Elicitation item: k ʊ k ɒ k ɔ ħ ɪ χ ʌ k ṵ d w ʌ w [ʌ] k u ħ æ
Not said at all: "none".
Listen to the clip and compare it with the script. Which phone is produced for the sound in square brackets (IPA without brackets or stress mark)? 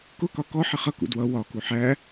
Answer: ɒ